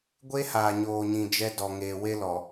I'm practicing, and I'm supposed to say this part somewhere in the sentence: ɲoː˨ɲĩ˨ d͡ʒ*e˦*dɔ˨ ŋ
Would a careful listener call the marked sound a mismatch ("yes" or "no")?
yes